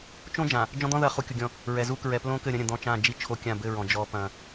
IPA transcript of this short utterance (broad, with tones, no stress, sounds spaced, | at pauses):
t͡ʃ õ˦ d͡ʒ ã˨ | d͡ʒ ɔ̃˦ d̪ ɔ̃˦ ð ɐ˦˨ χ u˦ kʲ u˨ ɡʲ ɔ̃˦˨ | ɹ ɛ˨ z u˦ k ɹ ɛ˨ p l õ˦ k ɘ˦˨ ɾʲ ɐ̃˦ ɾʲ ɐ̃˨ d̪ ɔ̃˦˨ t͡ʃ ã˦˨ d͡ʒ i˦ t͡ʃʰ o˦ kʲ ã˦˨ b ɘ˦˨ ɹ ɔ̃˨ d͡ʒ ɔ˦ p ɐ̃˦